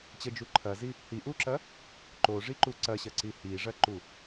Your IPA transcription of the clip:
t͡ɕəd͡ʒu ǃʰɐzi | hiʔuǁɐ | ǃoʐiǃu ǀɐɕɐǀi hiʐɐǃu

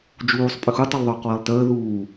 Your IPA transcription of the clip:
d͡ʒuːsˤ pʼʏxu tˤʏlˠðˤʏːqwəːlˠtəː ðuː

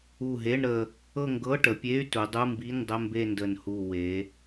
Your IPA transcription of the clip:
u˧˩ɦe˧˥˧ɳ ɾə˧˩ | ɤ˥˧ŋɡɤ˧˥˧ʈə˩˧pʲe˧˥˧y̯ tu˩˧dˤu˧˥˧mbi˧˥˧ndˤə˧˥˧ mbe˥˧ndə˧˩nhu˧˩ we˩˧

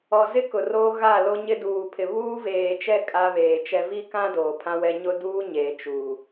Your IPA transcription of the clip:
ɔ˨zɪ˦ kʊ˨roː˦ɣa˦˨ lo˦ɲɪ˦ duː˨pʰɪ˨ βuː˦veː˨t͡ʃɛ˦ kʼa˦βeː˨t͡ʃɛ˦ vi˦kã˦ doː˨pʰã˦wɛ˦ ɲʊ˦duː˦ ɲeː˨ t͡ʃuː˨

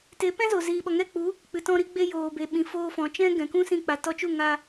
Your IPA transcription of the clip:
te˨˦pɛ̃˦zo˨ ziː˨ɓɔ˨ŋɛ˦˨k͡pu˨˦ | k͡pɨ˨tɔ̃˧ɾi˧ɡ͡be˧ joː˨be˨ɓĩ˨ foː˧fɔ̃˨t͡ʃɛ̃˦ ɡɛ̃˨kũ˦sĩ˧ k͡pa˨tɔ˧t͡ʃu˦˨ ŋa˧

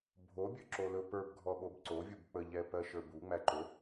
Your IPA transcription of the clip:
bʱobʲɵǁo lɵpə˞b ɡʱɔɓobǀovʲub k͡pəʎɛ pɜʃə˞bu ŋ͡mæǃɵ

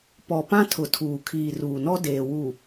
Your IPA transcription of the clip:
pɔ˨pã˦ tʰʊ˨tʰuː˨kʰiː˨ ruː˨nɔ˦ deː˨wu˨

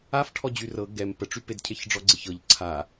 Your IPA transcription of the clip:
afʈʰɔ d͡ʑyrɤ ɡɛm pəʈ͡ʂyped cʰeçɖ͡ʐɔɡ͡ǀeçɤʎ ǀʰa

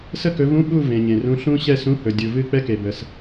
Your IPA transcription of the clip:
sə˥˨kɵ˨˦vũ˧˥˧ ɓu˥˨ vẽ˨ɲẽ˨rũ˧˥˧ ɬũ˥ ɕɛ˥˨sũ˧˥˧hɵ˨ dʲu˨vɨ˥˨ k͡pɛ˥ke˨bə˨s

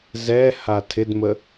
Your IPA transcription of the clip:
zɛha tʰɪdmə

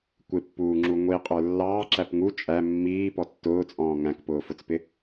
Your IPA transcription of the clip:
kʷɪpːuːŋ͡ǁu ŋʷiqʼə˞ lːɑːǁæp ŋu t͡ʃʼæ mːiːpɔ tːʊːt͡sʼɔ̃ː ŋæ̃kpʊːfʊt͡spɪ

